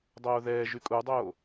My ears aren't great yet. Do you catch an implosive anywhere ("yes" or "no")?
no